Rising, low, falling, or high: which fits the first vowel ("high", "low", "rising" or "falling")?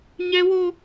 high